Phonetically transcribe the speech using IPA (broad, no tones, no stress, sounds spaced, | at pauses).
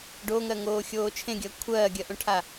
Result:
ɖ o ŋ ɜ ŋ oː xʲ oː t͡ʃʰ ẽ ɡʲ ɜ kʷʰ ɜː ɡʲ ɜ ʔ õ ʈʰ a